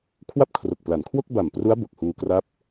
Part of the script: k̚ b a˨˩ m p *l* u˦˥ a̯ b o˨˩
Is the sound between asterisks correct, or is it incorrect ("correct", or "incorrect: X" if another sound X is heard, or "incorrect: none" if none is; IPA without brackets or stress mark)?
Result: incorrect: r